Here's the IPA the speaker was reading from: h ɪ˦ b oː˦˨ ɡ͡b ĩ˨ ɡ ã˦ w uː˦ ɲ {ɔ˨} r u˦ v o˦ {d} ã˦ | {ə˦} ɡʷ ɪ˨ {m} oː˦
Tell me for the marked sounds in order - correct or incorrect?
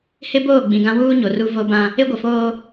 incorrect, incorrect, incorrect, incorrect

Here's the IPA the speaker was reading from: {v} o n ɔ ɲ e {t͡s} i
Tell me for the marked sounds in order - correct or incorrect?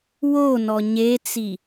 incorrect, correct

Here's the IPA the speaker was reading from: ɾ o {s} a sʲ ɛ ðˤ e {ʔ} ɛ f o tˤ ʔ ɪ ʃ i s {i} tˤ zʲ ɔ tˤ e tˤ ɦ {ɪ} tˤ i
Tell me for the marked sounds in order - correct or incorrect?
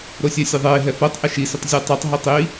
incorrect, incorrect, incorrect, incorrect

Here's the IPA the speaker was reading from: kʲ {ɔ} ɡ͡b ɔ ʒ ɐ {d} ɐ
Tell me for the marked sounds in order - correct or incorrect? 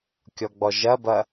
correct, incorrect

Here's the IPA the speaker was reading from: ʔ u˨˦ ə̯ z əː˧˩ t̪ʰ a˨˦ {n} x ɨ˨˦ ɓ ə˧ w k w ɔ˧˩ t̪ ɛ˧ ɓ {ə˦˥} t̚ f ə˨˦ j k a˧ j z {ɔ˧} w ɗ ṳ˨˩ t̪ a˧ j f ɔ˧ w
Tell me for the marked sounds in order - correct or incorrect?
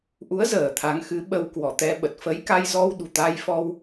incorrect, incorrect, correct

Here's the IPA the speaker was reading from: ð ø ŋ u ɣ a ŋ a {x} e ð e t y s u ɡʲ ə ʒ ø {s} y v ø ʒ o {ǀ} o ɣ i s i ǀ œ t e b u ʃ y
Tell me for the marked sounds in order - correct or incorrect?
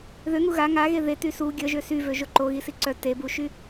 incorrect, correct, incorrect

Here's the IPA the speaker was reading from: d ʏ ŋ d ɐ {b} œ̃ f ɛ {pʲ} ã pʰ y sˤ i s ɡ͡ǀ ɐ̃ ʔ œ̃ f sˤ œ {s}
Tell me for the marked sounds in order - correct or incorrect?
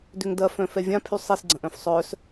incorrect, incorrect, correct

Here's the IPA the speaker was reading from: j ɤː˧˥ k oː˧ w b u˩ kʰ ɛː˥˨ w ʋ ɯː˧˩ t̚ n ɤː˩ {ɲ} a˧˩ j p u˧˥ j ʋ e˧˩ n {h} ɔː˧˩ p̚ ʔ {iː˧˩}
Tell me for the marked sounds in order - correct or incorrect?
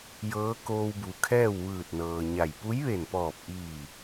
correct, incorrect, correct

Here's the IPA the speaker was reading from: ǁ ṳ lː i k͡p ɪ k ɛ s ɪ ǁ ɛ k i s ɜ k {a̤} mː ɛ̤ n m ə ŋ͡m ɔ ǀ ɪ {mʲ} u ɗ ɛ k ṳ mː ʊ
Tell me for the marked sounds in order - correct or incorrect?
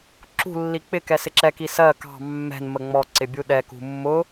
incorrect, incorrect

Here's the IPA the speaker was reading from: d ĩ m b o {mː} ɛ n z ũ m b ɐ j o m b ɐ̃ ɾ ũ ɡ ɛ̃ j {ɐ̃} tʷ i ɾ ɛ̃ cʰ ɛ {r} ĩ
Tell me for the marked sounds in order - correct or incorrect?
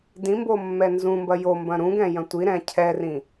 correct, correct, correct

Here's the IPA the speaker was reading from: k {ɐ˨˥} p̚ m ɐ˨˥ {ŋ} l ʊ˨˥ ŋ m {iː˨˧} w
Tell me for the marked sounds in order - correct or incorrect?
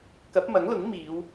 correct, correct, correct

